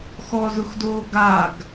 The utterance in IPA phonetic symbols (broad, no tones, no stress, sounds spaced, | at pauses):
x ɔ z ʊ x d oː ɡ a ɡ